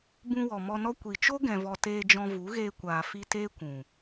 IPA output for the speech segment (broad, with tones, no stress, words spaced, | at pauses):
bũ˧wɔ˨ mɔ˧nɔ˦ kʷi˨t͡ʃo˦ ɡɛ̃˧vɔ˧ teː˧d͡ʒɔ̃˧vu˨˦ɣeː˧ kʷaː˨fi˧teː˦ kʷũ˨